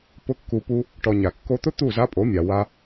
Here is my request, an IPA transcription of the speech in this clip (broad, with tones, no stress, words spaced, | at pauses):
pʊ˦kːu˧pu˦ | ʈɔ˧ɲa˨ kːo˧t̪ʊ˦ t̪u˦˨za˦pʼo˨˦mʲa˨ wa˧